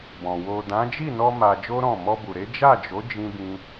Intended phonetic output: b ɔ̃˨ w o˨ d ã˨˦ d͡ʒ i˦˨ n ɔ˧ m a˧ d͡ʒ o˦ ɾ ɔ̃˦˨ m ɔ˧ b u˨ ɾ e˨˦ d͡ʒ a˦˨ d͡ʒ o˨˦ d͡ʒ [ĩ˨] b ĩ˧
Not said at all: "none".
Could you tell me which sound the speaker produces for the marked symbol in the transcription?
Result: ĩ˧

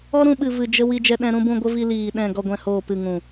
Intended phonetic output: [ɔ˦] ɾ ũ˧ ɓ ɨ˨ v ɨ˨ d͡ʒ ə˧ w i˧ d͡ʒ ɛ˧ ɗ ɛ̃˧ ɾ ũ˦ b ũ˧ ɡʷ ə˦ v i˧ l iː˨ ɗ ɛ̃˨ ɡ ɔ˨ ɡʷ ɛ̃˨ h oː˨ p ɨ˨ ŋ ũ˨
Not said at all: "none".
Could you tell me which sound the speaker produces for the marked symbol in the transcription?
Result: ɔ˦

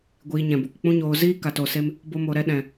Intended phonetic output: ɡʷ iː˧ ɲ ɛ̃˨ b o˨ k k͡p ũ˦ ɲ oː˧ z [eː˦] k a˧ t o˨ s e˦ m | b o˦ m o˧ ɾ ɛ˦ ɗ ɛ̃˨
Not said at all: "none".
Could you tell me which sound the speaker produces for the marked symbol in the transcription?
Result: iː˦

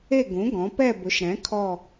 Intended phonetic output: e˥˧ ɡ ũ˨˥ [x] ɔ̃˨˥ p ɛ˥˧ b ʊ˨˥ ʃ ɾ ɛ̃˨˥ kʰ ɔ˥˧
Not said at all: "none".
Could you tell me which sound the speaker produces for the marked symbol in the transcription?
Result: ɡ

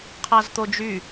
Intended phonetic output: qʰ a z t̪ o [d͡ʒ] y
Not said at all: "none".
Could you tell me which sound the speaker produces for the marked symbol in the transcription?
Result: d͡ʒ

